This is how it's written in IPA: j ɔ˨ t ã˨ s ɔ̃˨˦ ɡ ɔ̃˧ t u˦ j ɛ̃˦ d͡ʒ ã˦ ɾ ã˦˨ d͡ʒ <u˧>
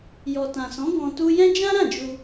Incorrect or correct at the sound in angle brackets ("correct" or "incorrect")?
correct